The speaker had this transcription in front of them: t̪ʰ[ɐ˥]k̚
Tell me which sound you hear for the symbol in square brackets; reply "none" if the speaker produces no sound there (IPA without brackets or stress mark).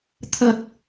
ɐ˥